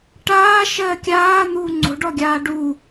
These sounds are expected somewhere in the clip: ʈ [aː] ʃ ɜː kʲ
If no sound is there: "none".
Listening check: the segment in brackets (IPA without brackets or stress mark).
aː